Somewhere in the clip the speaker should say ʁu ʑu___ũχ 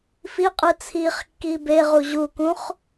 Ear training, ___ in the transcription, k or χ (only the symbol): k